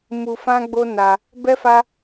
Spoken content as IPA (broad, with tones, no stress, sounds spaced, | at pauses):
m u˧ f ã˦ ɡ͡b o˦ n a˧ | b ɛ˦ f a˦